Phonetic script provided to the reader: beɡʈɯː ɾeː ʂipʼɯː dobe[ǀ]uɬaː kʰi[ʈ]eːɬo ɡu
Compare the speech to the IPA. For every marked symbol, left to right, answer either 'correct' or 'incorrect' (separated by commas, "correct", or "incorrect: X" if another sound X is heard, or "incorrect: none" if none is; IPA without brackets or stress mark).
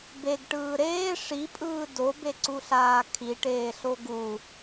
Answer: correct, correct